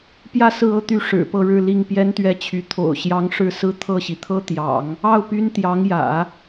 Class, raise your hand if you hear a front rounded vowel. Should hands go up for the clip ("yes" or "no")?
yes